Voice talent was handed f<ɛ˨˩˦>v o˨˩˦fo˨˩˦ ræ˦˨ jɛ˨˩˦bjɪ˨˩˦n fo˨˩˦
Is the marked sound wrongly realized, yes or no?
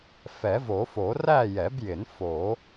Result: no